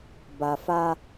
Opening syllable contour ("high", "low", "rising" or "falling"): low